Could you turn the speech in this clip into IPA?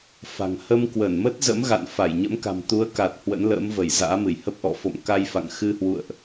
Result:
f a̤˨˩ ŋ h ə˧ m k w ə˧˩ n m ə˦˥ t̚ z ə̰˧˥ m ɣ a̰˧˨ n f a˧˩ j ɲ ə̰˧˥ m k a̤˨˩ m t̪ u˨˦ ə̯ k a˨˩ t̚ h w ə̰˧˥ n l ə̰ː˧˥ m v ə˧˩ j z a̰ː˧˥ m ɨ˧˩ j h ə˦˥ p̚ ʔ ɔ̰˧˨ f o̰˧˨ m k a˧ j f a̰˧˨ ŋ x ɨ˧ h w ṵ˧˨ ə̯ ʔ

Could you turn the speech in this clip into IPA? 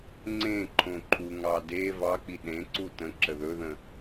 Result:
ŋ͡ǀ ẽ ǃʰ õ ǃʰ u ŋ ɑ d e v ɑ k͡p i ɗ ẽ ǀ u t ə̃ ǁ ə ð ɵ ð ə̃

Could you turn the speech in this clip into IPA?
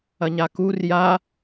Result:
ɐ ɲ a k u r j a

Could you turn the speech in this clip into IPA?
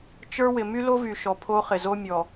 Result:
t͡ʃ ə˞˦ w ɪ˨ m y˦ l o˦ v y˨ ʃ ɔ˨ pʰ o˦ χ ɪ˨ z o˦ mʲ ɔ˨

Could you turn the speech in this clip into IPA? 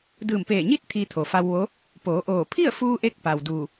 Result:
d ɯː˧˩ m p eː˧˩ ɲ i˥˨ t̚ t̪ʰ iː˧ t̪ʰ o˩ f a˧ w ʋ o˧˥ | p oː˩˧ ʔ oː˧˩ pʰ i˥˨ ə̯ f uː˧ ʔ e˧ k̚ p a˩ w d uː˧˩

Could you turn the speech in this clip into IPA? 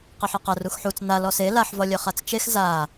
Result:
q ɐ ħ i q ɐ r u x ħ u t͡s n a l ɔ s e l a ħ v ɒ lʲ œ χ a t͡s t͡ʃ e x z a

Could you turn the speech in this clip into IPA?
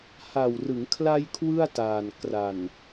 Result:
h a˨˩ w r ɯ˩˦ ŋ kʰ l a˧ j kʰ w ɯ˥˩ a̯ t aː˨˩ n k r a˨˩ n

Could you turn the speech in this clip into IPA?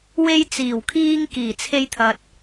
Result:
w e˧ j t͡s iː˨˩ w kʰ iː˧ ŋ k iː˨˩ t͡sʰ e˧ j t̪ʰ ɐ˨ t̚

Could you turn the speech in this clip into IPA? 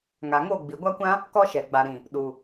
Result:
ŋ a˨ ŋ o˦˨ ɡ͡b i˨ ɡʷ a˦ kʷ ã˦ | k ɔ˦ ʃ ɛ˨ ɡ͡b a˨ ɾ ĩ˨ | ɗ u˨

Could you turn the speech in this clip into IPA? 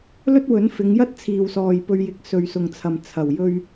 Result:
l ɵ˥ t̚ w ɵ˨˥ n f ɪ˨˧ ŋ j ɐ˥ t̚ t͡sʰ iː˨ w s ɔː˨ j p ɵ˧ ɥ j ɪ˨ k̚ s ɵ˨ ɥ s ʊ˨ ŋ t͡sʰ ɐ˨ m t͡sʰ ɐ˨˩ w j ɵ˧ ɥ

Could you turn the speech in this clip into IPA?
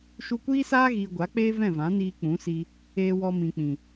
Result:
ʃ u˧ kʷ iː˦ s aː˦ ɣ iː˨ ɡʷ a˨˦ k͡p eː˦ v ɛ̃˦˨ v ã˨˦ n iː˧ k͡p ũ˨˦ s i˧ | eː˧ w ɔ˧ m ĩ˨ k͡p ĩ˨

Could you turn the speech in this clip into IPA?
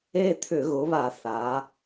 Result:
e˦˨ t̪ʰ ʏ˧˩˧ ɣ ʊ˩˧ β a˧˩˧ θ a˩˧

